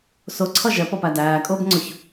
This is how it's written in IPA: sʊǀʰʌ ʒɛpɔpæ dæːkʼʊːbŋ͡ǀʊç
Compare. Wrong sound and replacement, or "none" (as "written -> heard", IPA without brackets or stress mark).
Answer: none